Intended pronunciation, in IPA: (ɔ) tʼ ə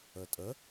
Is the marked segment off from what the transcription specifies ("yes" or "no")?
yes